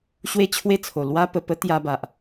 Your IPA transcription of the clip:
ɕ w e˥˧ t͡ɕʰ w e˥˧ t͡sʰ o˨˩ l w a˦ p ə˨˩ p ə˦ t̪ j a˧ b a˨ ʔ

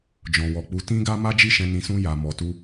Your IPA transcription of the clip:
d͡ʒ ɔ̃˨ w ɔ˨ k͡p u˨˦ t ĩ˦ ɡ a˦ m a˦ d͡ʒ i˦˨ ʃ ɛ̃˧ n ĩ˧ s ũ˦ j a˧ m ɔ˧ t u˦

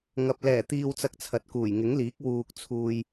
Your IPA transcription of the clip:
ŋ ɐ˨ p̚ l ɛː˨˩ t̪ iː˧ w t͡s ɐ˧ k̚ t͡sʰ ɐ˨ t̚ k uː˨˩ j ŋ ɪ˨˥ ŋ l iː˨˥ k̚ w uː˨ k̚ t͡sʰ uː˨ j

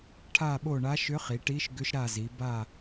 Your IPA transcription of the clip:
ʈʰ a˦˨ ɓ o˦˨ ɳ a˧˥ ʃ ʏ˧˥ χ i˩˧ ʈ i˧˥ ʃ ɡ ʏ˧˥ ʃ ɾ a˦˨ z i˩˧ b a˦˨

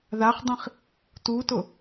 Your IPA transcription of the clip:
ð a χ dˤ ĩ χ | t u t ʊ

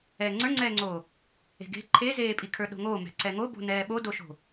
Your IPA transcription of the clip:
ɛː ŋ͡ǀ ə˞ ŋ͡ǀ ɛː ŋ͡ǀ oː | e̤ ɡ e̤ ǃʰ e z eː pʼ i kʰ ə˞ ɗ o̤ ŋ oː m ɛ̤ ǀ ɛ ŋ o b o̤ n ɛː ɓ o d o ʃ o̤

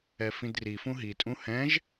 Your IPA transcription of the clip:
ɛ f ĩ d r i f ũ ɦ i tʼ ũ h ɛ̃ ʒ

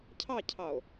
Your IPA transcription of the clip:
cʰ ɑ cʰ ɑ o̯

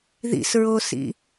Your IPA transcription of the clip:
ð ḭ s ɹ o s ḭ

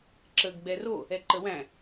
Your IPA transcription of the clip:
ǁ ə ɡ ɡ͡b ɛ r o | ɛ ǃ ə w æ̃

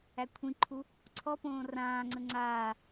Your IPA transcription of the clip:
æ kʷʰ ĩ ǃʰ u | ǀʰ ɔ p õː r ãː ŋ͡ǀ ə ŋ͡ǀ aː

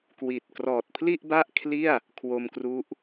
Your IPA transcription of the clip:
k w i˨˩ t̚ k r ɔː˨˩ t̚ pʰ l i˥˩ ʔ b a˥˩ ʔ kʰ l i˥˩ a̯ | kʰ w o˧ m k r u˦˥ ʔ

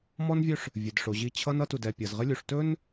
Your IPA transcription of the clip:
m ɔ˦ n vʲ ɵ˦ ʂ | vʲ ɘ˨ d ʂ o˨ ʑ i˦˨ t͡ɕʰ ʌ˦ n ʌ˦ t u˨ d ɛ˨ pʲ ʌ˨ z ʁ ɘ˦ lʲ u˨ ʂ t ɵ˦ n

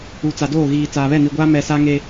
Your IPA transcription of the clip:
u˨ t͡s a˨ d oː˦˨ ɣ iː˨ t͡s aː˨ β ɛ˦˨ n i˨ ɡʷ aː˦ m ɛ˨ s a˦ ŋ e˦

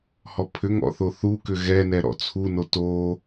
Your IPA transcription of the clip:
h ɔ pʰ ʏ ŋ ɔ̰ θ o θ u k ʏ ɣ ɛ n ɛ ɾ ɔ̰ t͡sʰ u n o t o

